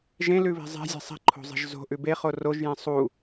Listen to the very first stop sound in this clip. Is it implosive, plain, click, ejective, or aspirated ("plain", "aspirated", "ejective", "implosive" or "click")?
click